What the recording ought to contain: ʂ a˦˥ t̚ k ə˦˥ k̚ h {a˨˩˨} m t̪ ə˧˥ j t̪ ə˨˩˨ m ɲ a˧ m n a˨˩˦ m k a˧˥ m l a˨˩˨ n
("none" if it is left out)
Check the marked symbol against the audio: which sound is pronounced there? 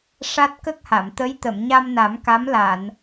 a˨˩˨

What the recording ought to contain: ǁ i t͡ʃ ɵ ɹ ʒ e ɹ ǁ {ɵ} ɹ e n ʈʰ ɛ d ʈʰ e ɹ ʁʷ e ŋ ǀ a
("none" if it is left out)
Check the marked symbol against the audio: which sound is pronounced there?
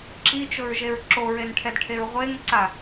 o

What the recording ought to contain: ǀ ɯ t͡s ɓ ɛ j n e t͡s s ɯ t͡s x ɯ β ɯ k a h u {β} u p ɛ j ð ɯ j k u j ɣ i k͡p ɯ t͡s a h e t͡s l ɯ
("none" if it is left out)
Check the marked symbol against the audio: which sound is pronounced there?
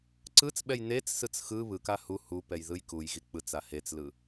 h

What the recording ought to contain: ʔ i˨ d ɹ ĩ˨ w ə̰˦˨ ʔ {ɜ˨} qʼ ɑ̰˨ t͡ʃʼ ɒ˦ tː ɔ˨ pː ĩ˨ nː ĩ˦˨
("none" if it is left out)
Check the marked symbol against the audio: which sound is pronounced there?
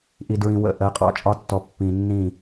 ɜ˨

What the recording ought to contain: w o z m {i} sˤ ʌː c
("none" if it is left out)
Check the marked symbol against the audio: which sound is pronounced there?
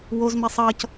i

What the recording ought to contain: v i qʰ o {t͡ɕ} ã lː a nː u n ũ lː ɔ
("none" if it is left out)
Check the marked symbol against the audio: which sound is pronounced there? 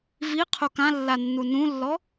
k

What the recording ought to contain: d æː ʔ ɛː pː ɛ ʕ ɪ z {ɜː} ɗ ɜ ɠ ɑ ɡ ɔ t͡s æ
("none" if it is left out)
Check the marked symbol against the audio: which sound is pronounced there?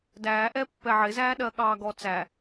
æː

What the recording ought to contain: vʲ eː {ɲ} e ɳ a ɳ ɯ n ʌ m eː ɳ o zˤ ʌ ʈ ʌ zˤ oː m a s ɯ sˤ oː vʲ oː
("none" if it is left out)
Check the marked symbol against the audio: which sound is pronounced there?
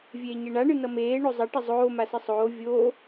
ɲ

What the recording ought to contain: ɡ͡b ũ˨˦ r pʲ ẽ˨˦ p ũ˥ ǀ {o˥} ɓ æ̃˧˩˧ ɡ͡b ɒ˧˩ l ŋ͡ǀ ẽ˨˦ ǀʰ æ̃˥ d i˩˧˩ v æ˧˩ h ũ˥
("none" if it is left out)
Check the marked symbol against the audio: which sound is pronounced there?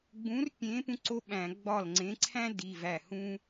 o˥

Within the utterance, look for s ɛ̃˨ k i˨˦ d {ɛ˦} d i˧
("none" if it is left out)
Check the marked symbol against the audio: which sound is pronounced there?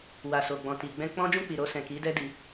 ɛ˦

